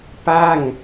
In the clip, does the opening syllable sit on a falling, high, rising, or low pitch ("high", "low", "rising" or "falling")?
falling